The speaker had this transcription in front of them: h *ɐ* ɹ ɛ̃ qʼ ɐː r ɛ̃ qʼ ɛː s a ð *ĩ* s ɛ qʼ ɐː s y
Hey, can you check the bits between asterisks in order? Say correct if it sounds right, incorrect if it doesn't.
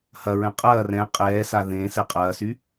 correct, incorrect

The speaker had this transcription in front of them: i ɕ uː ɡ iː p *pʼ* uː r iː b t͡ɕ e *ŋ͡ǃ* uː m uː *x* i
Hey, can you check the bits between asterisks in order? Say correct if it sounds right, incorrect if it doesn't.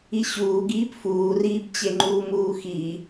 incorrect, correct, correct

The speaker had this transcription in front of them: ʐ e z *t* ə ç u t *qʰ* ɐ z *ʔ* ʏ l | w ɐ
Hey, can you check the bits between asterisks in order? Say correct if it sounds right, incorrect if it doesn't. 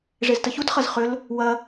correct, incorrect, incorrect

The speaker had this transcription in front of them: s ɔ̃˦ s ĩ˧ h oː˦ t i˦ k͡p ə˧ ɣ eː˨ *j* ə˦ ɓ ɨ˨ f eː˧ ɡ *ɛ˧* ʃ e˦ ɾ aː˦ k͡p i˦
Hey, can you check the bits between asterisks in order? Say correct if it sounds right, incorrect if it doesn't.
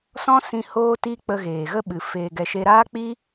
incorrect, correct

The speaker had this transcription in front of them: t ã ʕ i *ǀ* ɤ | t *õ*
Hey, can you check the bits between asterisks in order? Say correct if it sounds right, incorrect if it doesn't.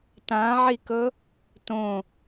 incorrect, correct

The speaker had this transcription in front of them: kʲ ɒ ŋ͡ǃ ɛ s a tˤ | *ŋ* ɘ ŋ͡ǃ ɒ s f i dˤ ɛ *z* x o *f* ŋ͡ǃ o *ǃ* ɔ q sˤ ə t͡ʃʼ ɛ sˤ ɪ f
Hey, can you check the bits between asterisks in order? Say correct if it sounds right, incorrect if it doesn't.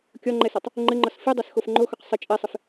incorrect, incorrect, correct, incorrect

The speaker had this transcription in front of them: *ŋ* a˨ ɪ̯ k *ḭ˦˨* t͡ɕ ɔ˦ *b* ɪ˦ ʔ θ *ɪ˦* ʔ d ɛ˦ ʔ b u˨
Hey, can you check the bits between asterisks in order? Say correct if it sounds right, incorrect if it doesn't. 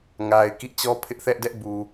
correct, correct, incorrect, incorrect

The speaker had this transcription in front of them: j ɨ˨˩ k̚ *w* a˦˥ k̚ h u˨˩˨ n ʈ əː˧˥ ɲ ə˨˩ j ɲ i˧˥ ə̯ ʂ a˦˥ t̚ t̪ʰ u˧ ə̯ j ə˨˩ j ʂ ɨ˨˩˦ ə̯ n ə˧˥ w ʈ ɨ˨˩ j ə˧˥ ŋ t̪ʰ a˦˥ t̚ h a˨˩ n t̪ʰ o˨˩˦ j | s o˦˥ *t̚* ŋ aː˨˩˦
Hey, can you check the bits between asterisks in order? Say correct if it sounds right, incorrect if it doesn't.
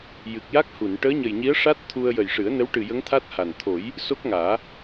incorrect, incorrect

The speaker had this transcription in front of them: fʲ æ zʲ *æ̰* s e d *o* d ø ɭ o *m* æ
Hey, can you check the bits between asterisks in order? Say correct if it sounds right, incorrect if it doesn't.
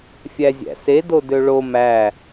correct, correct, correct

